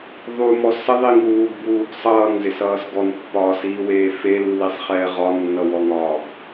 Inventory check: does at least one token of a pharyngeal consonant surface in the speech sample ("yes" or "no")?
no